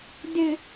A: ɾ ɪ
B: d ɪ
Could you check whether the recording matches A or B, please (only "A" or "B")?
B